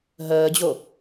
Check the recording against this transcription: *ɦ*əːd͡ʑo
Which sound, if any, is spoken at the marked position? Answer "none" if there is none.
ɦ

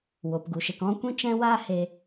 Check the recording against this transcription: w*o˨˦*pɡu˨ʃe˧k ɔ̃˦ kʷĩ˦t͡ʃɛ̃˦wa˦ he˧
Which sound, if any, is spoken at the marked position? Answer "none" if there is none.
o˨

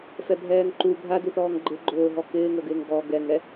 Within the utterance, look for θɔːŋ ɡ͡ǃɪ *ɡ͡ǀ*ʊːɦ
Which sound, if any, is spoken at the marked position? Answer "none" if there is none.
ɡ͡ǃ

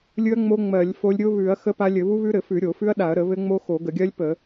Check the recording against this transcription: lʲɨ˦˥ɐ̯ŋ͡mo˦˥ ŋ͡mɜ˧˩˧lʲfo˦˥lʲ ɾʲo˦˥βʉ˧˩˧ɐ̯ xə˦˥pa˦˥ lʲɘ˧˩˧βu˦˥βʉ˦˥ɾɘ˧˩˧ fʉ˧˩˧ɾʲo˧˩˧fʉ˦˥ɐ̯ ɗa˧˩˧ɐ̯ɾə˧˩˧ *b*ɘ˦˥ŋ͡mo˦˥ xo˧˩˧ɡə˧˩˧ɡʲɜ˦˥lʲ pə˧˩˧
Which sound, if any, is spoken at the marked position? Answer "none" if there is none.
β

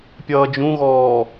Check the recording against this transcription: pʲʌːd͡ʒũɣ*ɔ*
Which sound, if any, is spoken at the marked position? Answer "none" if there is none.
ɔː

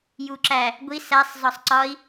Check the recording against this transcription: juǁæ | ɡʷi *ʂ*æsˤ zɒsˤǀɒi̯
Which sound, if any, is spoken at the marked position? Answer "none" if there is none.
s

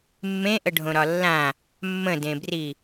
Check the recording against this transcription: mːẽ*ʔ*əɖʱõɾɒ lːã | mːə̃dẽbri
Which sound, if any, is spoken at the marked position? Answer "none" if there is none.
ʔ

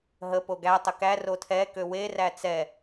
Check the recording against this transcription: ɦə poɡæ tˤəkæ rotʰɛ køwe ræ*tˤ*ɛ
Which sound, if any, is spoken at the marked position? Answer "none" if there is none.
t͡s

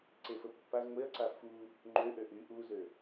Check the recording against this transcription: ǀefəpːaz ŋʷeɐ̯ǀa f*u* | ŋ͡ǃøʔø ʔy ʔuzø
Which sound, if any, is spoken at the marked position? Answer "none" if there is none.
u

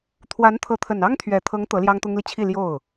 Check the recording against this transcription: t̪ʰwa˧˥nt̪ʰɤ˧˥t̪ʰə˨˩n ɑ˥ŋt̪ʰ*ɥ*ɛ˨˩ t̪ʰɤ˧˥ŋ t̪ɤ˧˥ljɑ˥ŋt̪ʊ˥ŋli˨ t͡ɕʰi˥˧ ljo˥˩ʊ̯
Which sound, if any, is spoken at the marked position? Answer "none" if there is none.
ɥ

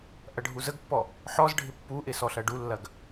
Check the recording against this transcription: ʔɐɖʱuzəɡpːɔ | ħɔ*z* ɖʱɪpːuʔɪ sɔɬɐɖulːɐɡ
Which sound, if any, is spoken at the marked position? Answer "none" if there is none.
z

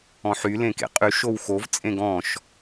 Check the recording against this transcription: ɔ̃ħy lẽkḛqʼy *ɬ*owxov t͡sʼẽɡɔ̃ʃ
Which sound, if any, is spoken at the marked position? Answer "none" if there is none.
ʃ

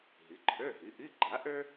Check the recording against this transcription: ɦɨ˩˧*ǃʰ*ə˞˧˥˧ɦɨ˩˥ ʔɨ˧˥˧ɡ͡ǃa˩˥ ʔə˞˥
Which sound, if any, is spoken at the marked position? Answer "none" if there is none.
ǃʰ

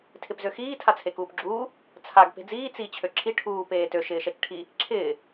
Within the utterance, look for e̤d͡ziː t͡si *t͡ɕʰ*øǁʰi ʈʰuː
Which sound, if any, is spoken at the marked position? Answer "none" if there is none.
t͡ɕʰ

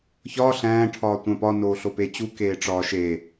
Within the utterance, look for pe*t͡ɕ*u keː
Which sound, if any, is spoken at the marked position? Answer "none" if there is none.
t͡ɕ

